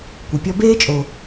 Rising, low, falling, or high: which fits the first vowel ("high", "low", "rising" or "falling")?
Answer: low